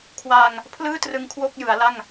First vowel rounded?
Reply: no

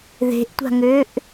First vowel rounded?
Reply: no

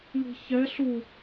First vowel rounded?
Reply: no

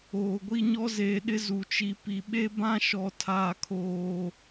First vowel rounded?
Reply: yes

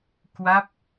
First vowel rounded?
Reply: no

